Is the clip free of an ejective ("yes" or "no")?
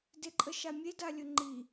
no